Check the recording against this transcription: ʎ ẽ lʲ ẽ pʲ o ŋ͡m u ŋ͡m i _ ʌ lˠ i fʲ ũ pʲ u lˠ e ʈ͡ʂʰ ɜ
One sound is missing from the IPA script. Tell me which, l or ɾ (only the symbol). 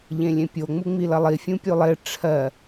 l